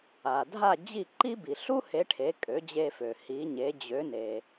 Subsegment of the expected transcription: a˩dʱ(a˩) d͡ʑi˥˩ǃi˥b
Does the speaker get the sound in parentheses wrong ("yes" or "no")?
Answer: yes